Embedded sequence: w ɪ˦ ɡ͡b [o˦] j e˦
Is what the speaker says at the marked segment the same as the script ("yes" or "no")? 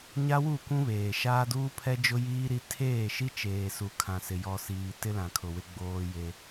no